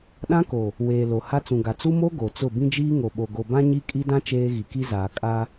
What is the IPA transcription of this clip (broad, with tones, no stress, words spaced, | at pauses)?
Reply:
ɗã˦ko˨ | weː˨ lo˨ ha˦t͡sũ˨ɡa˨ t͡su˦mo˦ ɡo˨t͡sʊ˦˨ bĩ˦d͡ʒiː˦ŋo˨ ɓo˨ɡo˨bã˦ ɲi˦ kʼi˦dã˦ t͡ʃeː˦ɣi˨ki˦zaː˨ kʼa˦